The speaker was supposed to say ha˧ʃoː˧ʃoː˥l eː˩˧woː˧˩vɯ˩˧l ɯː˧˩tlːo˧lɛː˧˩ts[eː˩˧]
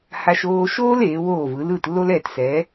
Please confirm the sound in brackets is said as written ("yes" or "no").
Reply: no